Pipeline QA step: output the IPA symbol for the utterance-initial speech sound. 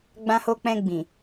ɡ͡b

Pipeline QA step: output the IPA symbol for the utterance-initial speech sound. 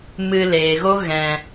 m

